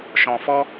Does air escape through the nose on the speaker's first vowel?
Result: yes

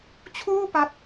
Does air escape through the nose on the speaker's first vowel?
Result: no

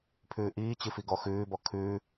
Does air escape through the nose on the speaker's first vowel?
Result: no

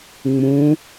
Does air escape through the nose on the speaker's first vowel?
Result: yes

